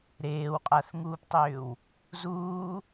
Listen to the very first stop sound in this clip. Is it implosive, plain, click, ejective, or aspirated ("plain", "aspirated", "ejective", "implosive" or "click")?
ejective